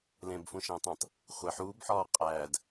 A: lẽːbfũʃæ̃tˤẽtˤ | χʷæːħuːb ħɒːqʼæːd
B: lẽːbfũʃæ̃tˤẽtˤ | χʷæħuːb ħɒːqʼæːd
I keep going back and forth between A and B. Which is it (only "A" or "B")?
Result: B